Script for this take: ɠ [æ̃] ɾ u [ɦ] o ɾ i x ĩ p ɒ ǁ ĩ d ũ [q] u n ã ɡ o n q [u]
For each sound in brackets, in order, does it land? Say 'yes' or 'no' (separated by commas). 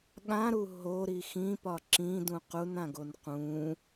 no, yes, yes, no